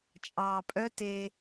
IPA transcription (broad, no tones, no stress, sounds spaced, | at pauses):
t͡ʃʼ ɑː pʼ œ t e